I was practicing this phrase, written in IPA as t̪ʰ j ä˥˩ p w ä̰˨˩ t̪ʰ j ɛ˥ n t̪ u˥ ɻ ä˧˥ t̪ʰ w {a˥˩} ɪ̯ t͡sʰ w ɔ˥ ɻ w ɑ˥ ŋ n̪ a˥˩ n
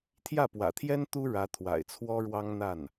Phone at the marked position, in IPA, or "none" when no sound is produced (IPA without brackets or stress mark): a̰˨˩